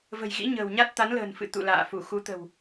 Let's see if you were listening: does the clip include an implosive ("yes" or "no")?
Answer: no